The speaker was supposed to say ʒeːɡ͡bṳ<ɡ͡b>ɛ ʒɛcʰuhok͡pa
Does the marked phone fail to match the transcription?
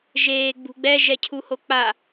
no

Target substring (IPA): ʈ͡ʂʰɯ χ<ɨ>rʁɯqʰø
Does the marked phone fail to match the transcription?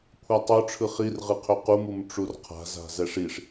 yes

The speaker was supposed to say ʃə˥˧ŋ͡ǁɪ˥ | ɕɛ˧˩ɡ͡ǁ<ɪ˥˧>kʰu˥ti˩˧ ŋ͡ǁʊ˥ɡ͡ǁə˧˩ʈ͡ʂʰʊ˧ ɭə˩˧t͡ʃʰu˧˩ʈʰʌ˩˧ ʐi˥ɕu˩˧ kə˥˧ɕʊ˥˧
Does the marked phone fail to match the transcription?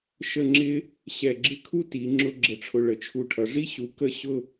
no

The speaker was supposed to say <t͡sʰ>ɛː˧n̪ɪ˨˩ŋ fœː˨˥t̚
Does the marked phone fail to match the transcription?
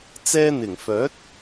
yes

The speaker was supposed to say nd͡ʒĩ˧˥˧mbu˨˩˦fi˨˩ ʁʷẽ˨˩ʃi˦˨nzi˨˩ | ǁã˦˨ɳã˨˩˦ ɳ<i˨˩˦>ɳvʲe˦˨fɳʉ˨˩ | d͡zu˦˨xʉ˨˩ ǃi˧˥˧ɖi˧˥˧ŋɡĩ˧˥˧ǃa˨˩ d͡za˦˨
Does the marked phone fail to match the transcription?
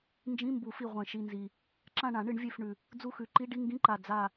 yes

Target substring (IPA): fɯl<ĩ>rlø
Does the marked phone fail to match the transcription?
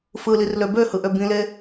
yes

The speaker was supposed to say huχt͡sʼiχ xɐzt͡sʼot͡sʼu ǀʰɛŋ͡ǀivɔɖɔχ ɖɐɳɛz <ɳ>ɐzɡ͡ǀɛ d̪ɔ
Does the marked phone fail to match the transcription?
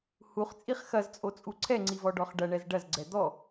yes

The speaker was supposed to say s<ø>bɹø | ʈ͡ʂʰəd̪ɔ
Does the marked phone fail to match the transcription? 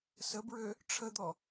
yes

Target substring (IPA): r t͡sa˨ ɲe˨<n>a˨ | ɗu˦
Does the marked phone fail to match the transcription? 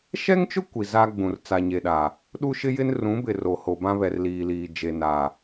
yes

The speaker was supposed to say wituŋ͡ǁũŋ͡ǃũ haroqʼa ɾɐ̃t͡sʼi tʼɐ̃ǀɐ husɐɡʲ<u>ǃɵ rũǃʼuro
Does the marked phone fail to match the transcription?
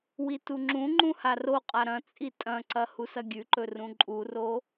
yes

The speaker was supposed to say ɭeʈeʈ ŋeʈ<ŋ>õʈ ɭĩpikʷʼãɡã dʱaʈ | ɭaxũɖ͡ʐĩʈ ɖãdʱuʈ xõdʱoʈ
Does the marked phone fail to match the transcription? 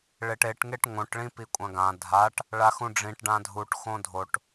no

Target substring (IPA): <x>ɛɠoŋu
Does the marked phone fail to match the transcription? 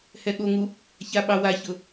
yes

